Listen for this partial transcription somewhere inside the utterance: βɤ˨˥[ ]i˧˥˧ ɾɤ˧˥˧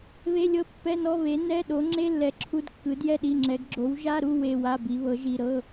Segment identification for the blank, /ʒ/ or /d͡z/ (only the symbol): ʒ